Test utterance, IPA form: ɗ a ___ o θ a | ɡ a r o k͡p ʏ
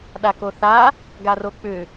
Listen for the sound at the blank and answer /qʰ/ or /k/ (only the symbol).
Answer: k